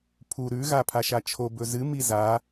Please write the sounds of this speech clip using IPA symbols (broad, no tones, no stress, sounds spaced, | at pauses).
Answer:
pʰ u ɾ ʉ ɣ a pʰ a ʃ a t͡ʃʰ o b ɵ z ɨ m i z a